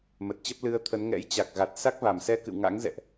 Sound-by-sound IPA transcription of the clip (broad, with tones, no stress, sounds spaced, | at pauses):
m ə˨˩ t̚ t͡ɕ ə˦˥ p̚ l ɨ˧ ə̯ t̪ʰ ə˨˦ n ŋ ɛ̰˧˥ j t͡ɕ a˨˩ k̚ ɣ a˨˩ t̚ s a˦˥ k̚ v a˧˩ m s ɛ˧ k ɨ̰˧˨ w ŋ a̰˧˥ ŋ z ɛ̰˧˨ ʔ